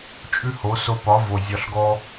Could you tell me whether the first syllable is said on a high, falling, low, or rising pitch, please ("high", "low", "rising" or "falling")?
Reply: high